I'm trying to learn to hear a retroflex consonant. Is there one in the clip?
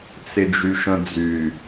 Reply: no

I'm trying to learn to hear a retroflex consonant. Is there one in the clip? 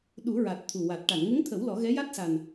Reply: yes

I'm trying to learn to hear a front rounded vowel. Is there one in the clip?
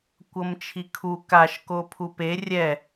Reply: no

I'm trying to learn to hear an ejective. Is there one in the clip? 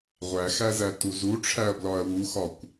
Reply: no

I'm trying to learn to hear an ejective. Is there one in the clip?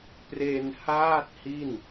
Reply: no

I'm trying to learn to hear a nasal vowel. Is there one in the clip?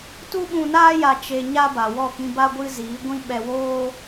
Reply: yes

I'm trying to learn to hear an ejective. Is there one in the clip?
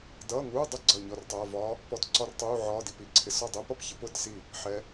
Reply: no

